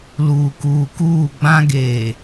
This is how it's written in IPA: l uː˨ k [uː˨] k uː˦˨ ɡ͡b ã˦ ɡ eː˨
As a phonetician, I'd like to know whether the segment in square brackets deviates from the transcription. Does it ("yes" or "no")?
no